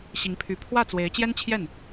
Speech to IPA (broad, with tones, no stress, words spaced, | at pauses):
ɕi˧˥ŋpʰy˧˥ pʰwä˥˩t͡swe˧˥ɪ̯ t͡ɕjɛ˥nt͡ɕʰjɛ˥˩n